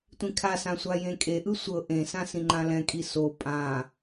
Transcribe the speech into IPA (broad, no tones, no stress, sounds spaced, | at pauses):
tʷ ĩ kʰ a s ã sʷ a j ẽ kʼ e ʔ ɯ sʷ ɤ ʔ ẽ s ã s ĩ ŋ͡ǃ ã l ɛ̃ kʼ i s o pʼ ã